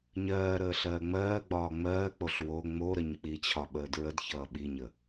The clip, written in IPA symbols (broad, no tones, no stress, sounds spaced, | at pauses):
ɲ ɜː ɾ əː ɬ ɜː ŋ͡m ɜː ɡ͡b ɒː ŋ͡m ɜː k͡p o ɬ w o ŋ͡m o ɾ ə ɲ k͡p i t͡ɕʰ ɒ ɓ əː d ɹ ə d ç ʌː ɓ i ɲ ə